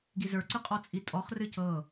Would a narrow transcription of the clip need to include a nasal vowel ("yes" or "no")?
no